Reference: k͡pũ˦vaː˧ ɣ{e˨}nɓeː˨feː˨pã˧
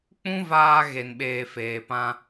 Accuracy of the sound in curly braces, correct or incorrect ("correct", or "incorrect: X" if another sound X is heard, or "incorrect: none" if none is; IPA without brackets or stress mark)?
correct